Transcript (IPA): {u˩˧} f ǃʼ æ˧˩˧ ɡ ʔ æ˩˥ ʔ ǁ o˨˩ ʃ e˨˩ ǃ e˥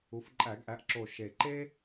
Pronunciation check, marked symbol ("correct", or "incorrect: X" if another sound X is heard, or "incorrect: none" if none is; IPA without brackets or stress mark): correct